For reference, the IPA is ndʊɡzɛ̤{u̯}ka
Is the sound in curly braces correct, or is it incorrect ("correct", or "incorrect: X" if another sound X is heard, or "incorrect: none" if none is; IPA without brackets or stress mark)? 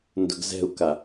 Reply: correct